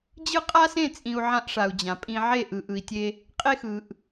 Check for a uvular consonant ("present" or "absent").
present